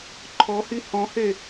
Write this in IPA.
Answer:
ǃʰɔhi hɔ̃he

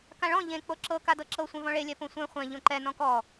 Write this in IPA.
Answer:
kãɭɔ̃ ʎẽ k͡poǁɤ kadɤǁɤ sʷɛ̃vɔ̃ɭe lʲɛpõsʷɛ̃ χʷɛ̃ ʎõǃɛ nɔ̃kɔ

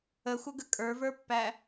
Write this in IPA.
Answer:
əxʷəɡə kʼə˞və˞pːæ

